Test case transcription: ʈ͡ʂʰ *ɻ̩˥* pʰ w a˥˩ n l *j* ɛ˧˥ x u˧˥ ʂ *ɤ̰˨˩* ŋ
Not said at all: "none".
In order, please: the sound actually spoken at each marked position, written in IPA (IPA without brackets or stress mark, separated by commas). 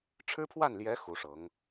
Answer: ɻ̩˥, j, ɤ˧˥